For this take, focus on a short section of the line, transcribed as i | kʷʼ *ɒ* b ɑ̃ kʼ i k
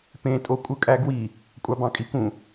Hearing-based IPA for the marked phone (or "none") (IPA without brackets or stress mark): ɑ